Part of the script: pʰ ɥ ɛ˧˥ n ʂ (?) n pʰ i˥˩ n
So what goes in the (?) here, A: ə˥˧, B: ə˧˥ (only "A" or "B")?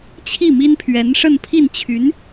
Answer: A